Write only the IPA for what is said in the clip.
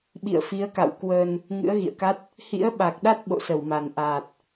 ɓḭ˧˨ə̯fi˨˦ə̯ka̰˧˨w kwə˧n | ŋɨ̰˧˥ə̯ɣḭ˧˨ə̯ka˦˥t̚ | hḭ˧˥ə̯ɓa˨˩k̚ɗa˦˥t̚ ɓo̰˧˨sə˧˩wma˨˩nʔaː˨˩t̚

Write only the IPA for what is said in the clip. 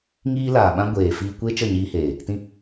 ŋiː˦laː˨ɓã˦ ɡʷeː˨ fiː˧ kʷe˦ t͡ʃə˦˨ɲiː˧heː˨ | tĩ˦

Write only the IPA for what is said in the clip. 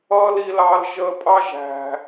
ʌː˦li˧lɑ˧l ʒəː˧pʼɑ˦ʒæ̤˨

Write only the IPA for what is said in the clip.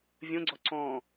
vʲõɡ͡ǀɔ ǀɔ̃

